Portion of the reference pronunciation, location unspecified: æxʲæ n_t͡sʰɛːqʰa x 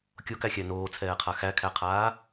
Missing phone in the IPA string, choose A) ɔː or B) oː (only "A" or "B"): B